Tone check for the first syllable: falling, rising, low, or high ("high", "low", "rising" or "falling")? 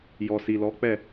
low